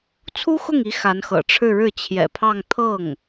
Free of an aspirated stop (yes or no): no